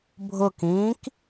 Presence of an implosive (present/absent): absent